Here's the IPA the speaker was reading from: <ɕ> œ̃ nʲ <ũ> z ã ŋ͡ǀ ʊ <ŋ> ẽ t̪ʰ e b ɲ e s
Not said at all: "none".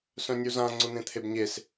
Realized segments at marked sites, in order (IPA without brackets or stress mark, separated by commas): s, u, n̪